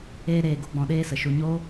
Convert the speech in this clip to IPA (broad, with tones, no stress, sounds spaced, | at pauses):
eː˦ ɾ eː˧ ɡ o˦ ɡ͡b ɔ̃˧ ɗ eː˦ s ə˨ ʃ u˧ ɲ o˦